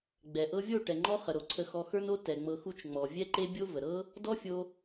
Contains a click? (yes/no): yes